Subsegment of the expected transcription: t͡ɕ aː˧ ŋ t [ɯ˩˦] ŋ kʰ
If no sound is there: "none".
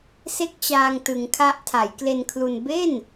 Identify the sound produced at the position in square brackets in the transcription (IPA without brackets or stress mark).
ɯ˩˦